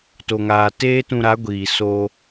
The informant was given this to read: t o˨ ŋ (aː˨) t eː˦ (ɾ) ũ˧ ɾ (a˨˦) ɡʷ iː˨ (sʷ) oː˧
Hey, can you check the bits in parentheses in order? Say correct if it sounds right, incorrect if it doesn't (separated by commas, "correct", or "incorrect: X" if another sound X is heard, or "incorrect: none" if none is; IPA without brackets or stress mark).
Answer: correct, incorrect: t, correct, incorrect: s